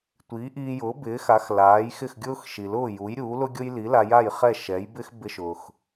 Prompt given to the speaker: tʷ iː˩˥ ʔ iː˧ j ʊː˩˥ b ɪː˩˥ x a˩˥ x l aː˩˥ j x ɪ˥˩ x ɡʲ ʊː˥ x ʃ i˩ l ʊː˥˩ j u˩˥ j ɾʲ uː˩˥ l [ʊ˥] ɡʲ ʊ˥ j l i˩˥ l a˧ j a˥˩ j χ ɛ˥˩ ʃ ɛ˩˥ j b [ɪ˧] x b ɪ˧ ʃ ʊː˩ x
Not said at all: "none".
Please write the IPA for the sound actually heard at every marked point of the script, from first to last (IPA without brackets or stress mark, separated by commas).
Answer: ʊ˥, ɪ˥